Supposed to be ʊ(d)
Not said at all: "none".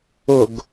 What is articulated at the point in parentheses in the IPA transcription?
ɡ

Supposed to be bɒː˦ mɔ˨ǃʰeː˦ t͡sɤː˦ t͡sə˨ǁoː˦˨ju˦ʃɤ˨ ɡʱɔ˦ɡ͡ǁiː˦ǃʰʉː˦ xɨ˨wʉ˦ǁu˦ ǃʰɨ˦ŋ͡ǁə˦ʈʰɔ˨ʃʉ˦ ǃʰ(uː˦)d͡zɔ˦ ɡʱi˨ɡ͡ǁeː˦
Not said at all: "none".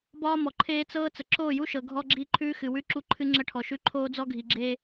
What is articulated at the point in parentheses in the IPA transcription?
oː˦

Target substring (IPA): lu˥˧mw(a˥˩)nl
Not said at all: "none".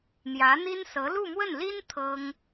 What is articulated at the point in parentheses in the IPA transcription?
ə˥˩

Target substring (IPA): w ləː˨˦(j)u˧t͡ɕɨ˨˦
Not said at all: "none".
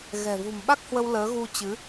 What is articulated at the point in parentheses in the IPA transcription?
ɣ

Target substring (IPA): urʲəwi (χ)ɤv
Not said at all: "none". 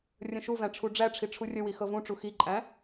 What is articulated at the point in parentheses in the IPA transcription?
x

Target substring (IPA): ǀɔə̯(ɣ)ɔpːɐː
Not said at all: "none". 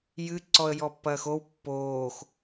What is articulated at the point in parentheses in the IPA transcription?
j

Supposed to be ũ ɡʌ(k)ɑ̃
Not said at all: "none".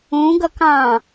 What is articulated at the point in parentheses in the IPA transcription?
k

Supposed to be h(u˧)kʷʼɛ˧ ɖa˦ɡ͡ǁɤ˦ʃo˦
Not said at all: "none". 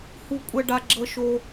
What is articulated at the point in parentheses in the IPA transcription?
u˧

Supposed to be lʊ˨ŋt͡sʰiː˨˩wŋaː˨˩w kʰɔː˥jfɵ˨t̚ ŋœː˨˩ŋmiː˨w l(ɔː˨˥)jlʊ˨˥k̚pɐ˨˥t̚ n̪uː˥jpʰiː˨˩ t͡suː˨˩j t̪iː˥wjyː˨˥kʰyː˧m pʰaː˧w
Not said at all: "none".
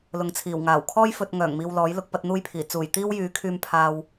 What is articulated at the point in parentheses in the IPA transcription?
ɔː˨˥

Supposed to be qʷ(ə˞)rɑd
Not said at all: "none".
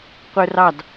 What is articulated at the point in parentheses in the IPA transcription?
ə˞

